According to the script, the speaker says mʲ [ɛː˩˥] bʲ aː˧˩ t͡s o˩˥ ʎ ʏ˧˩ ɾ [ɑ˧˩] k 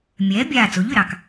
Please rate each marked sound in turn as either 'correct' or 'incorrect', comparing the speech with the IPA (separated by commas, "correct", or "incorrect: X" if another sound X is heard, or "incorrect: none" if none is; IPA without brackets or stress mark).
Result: correct, correct